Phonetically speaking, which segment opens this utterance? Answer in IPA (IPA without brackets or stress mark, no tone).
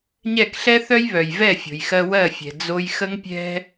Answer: ɲ